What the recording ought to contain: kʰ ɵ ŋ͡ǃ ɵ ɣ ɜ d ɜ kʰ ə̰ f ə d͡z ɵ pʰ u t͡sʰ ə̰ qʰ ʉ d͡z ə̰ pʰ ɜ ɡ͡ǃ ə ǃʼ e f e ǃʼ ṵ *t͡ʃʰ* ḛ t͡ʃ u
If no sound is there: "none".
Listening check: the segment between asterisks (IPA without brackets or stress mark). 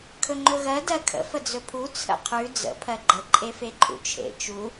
t͡ʃʰ